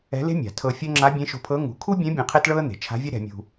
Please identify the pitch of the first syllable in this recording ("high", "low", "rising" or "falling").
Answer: rising